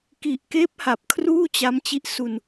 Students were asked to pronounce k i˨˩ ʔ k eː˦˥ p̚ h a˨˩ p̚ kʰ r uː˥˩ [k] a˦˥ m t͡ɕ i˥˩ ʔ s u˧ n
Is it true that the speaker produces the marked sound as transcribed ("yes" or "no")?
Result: no